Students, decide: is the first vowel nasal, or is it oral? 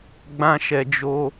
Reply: nasal